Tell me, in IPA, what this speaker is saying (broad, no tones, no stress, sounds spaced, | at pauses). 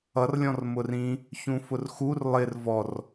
ʌ r lʲ ɔ̃ r m ʊ r ĩ | ç ũ f ʊ r x u r lˠ ɪ r v ɔ r